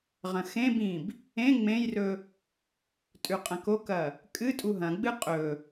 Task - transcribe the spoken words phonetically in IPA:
ʁɐ̃xẽbĩb | ẽ ŋ͡mẽjrɵ | tʼʉqʼɐ̃kokɐ | kʼɨ tʼuɦɐ̃ɡ͡bɨ qʼɵ

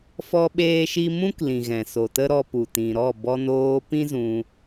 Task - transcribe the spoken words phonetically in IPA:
fɔ˦ɓeː˦ʃi˦ mũ˦klĩ˨ɣɛ̃˨ so˨tə˦ɾɔ˧pu˨ tĩ˨ɾɔ˦˨ bɔ˧noː˧pĩ˦ zũ˧

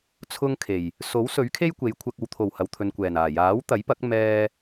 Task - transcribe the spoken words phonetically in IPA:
t͡sʰʊ˥ŋkʰe˨˩j | so˨˥wsɵ˨˥ɥkʰe˥j kʷe˨˧jkʷʰɐ˧k̚ ɐ˨wt̪ʰo˨˩w hɐ˨wt̪ʰɵ˨nkʷɛː˨˩n aː˨˩jaː˨˥wt̪ɐ˨˥jpɐ˨˥k̚ mɛː˥

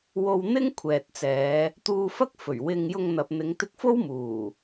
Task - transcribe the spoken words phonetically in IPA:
wo˧wn̪ɪ˥ŋkʷʰɛː˨t̚t͡sɛː˨˧ | t̪uː˧fɐ˥k̚fɵ˨˩ɥ wɪ˧ŋ jʊ˧ŋn̪ɐ˨p̚n̪ɪ˨˧ŋ t̪ɪ˧k̚fo˥w muː˨˩

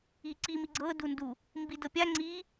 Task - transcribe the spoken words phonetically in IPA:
iǀi miɡ͡ǀɤ dundu | mbidɤpʲa ŋ͡ǀi

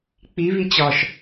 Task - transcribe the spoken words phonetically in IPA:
k͡pi βit͡ɕɒʃ

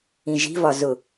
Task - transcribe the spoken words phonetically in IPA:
ĩʒi̤vɒ zʊ

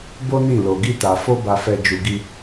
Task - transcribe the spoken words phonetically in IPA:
bo˦ nĩ˦˨lo˨ ɡi˧ta˨ fo˧ba˨fɛ˨ d͡ʒu˨ɡi˧

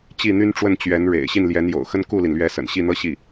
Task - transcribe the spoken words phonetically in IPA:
t͡ɕi˥˩n̪y˥nʈ͡ʂwə˥˩n t͡ɕɥɛ˧˥n ɻḛ˨˩ɪ̯ ɕi˥˩nljɛ˧˥njo̰˨˩ʊ̯xə˥n ku˥˩li˩nlɥɛ˧˥ sə̰˨˩nɕi˥˩n̪ɤ˥ ɕi˥˩

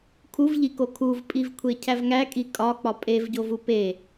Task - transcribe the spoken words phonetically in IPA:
kʰuvʎiko kʰuvpʼivkʷʰecʰæv ŋækʼi kʼɒk͡pɒ pʼevɟovu pe

